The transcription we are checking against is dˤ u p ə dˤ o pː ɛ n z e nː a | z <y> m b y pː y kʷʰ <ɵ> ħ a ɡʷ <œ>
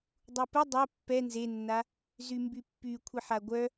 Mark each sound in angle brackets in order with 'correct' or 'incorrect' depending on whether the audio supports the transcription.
correct, incorrect: ə, correct

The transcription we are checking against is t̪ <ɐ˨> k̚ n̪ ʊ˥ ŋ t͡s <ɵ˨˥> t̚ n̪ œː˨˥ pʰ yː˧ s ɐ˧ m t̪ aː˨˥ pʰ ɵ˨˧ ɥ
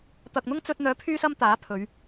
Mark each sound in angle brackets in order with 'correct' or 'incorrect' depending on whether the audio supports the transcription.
correct, incorrect: ɵ˧

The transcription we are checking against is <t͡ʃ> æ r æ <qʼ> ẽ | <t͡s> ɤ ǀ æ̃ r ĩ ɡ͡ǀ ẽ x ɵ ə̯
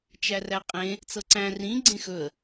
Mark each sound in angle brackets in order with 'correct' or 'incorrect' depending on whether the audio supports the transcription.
correct, correct, correct

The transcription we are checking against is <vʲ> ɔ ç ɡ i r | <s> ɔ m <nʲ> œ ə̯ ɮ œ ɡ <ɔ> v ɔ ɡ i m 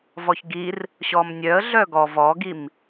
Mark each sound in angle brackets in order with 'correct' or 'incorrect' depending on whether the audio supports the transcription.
incorrect: v, incorrect: ɕ, correct, correct

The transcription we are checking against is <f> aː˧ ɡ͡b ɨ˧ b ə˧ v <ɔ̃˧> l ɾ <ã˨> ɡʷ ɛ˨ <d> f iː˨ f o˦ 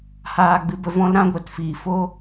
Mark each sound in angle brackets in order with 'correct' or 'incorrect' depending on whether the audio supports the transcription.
incorrect: h, incorrect: ɔ̃˦, incorrect: ã˦, incorrect: t

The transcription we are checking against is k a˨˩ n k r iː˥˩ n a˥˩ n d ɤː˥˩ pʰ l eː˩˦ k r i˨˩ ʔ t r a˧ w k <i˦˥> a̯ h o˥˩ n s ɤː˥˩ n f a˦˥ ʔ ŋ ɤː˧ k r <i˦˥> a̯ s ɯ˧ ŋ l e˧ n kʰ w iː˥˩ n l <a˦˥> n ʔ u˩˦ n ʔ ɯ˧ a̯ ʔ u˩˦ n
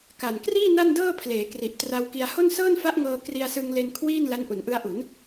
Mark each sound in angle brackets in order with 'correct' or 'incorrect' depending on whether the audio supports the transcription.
incorrect: i˧, incorrect: i˧, correct

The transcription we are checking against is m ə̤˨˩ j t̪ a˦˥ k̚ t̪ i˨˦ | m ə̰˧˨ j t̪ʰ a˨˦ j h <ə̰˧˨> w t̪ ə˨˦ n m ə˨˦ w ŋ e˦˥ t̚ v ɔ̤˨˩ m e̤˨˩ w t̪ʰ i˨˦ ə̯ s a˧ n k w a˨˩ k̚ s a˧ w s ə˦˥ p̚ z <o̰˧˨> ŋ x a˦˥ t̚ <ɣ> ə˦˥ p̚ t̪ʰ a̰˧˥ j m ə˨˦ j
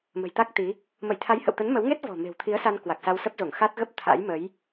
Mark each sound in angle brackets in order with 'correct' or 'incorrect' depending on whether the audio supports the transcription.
correct, incorrect: o˧˩, correct

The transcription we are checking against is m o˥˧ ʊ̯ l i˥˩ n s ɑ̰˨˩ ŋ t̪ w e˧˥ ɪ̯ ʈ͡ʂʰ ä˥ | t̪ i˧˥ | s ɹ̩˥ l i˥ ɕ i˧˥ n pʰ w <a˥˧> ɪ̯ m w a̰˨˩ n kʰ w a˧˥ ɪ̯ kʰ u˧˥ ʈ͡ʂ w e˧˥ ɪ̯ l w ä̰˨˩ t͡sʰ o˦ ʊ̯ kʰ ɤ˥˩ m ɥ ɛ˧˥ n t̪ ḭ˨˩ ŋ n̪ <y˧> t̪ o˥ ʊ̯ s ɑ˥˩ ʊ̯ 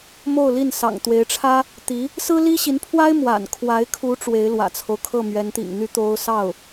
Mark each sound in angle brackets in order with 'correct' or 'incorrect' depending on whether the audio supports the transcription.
incorrect: a˥, incorrect: y˥

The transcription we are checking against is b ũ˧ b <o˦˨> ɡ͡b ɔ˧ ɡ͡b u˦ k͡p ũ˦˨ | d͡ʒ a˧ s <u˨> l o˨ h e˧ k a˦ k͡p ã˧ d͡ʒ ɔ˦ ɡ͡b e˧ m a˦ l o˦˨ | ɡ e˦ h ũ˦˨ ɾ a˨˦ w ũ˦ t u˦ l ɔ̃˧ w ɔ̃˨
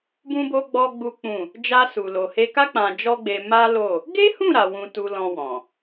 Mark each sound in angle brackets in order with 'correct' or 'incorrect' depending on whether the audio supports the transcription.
incorrect: o˧, correct

